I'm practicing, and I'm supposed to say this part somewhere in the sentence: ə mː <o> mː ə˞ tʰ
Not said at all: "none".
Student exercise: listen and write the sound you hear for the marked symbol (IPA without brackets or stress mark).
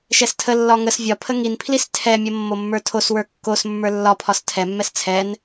o